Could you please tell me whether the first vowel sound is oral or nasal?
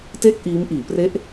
oral